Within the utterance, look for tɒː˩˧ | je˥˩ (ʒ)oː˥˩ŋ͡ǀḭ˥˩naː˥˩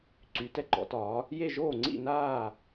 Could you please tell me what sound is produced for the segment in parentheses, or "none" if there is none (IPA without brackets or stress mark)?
ʒ